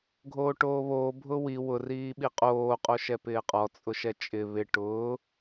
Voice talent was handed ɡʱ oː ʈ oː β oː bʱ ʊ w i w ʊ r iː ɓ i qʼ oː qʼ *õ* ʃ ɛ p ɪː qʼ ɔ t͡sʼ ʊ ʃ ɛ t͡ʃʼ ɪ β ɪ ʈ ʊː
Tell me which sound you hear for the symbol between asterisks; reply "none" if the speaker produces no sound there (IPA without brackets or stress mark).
o